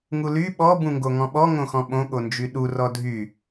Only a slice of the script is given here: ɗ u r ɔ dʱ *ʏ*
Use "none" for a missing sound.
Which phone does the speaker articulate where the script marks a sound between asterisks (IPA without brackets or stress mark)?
y